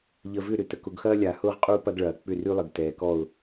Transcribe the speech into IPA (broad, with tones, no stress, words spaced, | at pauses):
ʎə˨vʏ˦˨ ɾʏ˨tə˨kʊ˨ɡxɐː˦ lʲa˨ hʊː˦ʁqʼuː˦ pɐ˦ɡɭɐː˨ k͡pʏ˦˨ry˦lˠə˨ɡ tɛː˨kɔ˦˨ʊ̯